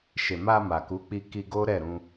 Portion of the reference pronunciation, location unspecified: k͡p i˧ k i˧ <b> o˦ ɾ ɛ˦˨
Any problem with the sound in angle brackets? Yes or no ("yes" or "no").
yes